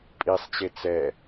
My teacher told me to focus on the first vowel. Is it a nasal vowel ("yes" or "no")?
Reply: no